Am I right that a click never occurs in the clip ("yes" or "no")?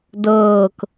yes